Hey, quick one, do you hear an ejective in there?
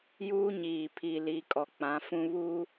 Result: yes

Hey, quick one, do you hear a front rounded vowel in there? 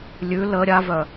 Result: yes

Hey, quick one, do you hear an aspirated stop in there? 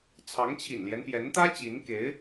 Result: yes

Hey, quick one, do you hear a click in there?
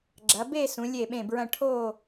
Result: yes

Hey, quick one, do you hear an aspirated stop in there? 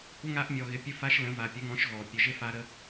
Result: no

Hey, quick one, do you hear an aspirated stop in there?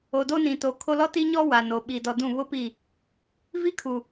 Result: yes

